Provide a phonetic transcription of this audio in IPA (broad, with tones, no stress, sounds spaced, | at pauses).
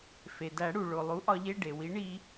f e˩ d æ˨˩˦ ɽ u˩ ɭ o˩ lˠ u˩˥ ʔ ɒ˧ ʎ e˧˥˧ ɖ e˩ w i˩˥ ɳ i˧